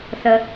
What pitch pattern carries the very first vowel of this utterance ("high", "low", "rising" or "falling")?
low